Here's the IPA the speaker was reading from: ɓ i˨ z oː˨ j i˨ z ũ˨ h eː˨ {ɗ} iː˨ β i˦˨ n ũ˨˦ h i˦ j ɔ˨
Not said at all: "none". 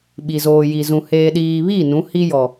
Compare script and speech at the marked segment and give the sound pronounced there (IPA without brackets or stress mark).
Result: ɗ